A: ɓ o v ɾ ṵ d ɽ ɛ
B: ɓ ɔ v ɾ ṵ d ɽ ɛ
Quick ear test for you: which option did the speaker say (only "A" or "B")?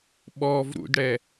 B